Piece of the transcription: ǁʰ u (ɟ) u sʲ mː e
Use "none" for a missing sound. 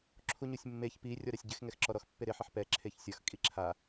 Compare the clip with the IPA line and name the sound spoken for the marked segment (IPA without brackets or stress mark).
ɲ